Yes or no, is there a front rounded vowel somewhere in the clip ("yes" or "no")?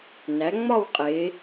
no